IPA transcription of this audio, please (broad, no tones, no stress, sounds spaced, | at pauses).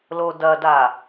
l o d ɐ d a